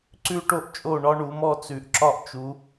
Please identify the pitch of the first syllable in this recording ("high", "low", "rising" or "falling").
high